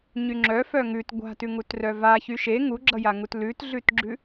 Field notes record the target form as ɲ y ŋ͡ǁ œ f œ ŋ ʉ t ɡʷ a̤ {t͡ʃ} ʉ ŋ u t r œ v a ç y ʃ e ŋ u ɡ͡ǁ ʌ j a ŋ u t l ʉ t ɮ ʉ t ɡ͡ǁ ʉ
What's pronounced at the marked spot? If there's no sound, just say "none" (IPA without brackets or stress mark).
t